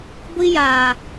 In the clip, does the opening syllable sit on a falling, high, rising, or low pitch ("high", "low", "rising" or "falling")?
high